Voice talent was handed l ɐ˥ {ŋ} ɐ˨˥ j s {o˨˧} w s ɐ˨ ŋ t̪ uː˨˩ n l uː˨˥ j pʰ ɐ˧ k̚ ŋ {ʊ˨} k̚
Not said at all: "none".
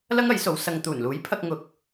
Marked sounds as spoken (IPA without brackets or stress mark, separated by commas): ŋ, o˨˧, ʊ˨